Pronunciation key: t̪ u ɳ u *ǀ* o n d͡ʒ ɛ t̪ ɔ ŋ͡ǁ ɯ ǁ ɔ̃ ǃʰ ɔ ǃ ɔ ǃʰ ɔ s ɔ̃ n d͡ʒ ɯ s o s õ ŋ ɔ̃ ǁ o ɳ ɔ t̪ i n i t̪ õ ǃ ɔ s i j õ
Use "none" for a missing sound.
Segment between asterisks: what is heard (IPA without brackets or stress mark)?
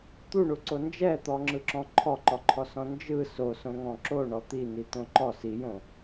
ǀ